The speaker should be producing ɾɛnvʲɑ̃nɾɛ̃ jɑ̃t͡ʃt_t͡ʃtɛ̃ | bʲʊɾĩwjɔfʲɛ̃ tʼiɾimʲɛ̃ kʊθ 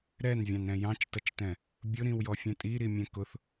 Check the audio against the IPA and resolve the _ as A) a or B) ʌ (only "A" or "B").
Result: B